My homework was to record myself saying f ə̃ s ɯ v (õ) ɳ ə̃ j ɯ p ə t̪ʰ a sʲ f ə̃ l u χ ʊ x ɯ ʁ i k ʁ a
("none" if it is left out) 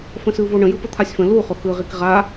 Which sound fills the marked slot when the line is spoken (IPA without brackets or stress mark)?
o